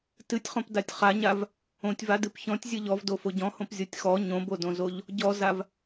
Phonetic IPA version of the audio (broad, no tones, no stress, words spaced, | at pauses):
tɨtʲχõp datʲχaɲav | õtʲva dɨpçɔ̃tʲ zʲɨʎɔvdo foɟɔ̃hõp zʲɔtʲxɔ ɲõbodõzoʎ | ɟɔzav